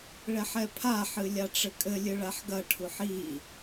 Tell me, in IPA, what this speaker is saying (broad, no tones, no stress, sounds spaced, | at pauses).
ɭ ɛ ħ ɛ pʰ a ħ ɨ lʲ a ʈ͡ʂ ɘ kʼ ɘ lʲ ɨ ɭ a ħ ɡ ɐ ʈʰ u ħ i